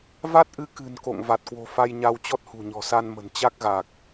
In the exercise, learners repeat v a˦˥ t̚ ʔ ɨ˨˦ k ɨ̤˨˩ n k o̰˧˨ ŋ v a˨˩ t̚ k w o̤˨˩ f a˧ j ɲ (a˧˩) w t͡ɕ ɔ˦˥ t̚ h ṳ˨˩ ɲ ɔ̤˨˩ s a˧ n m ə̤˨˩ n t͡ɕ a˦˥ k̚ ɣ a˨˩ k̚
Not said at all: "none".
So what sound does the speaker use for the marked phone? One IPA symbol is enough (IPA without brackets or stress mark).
a˧